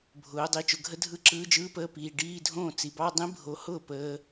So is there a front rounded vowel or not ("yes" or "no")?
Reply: no